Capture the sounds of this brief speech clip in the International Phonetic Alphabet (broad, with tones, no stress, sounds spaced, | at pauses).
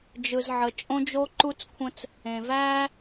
d͡ʒ ɯ˨ z ʕ ə˨ t͡ʃʼ õ˦ d͡ʒ o˦ ǃ u˦ t͡s kʷʰ ə̃˦ t͡s | ẽ˨ v æː˦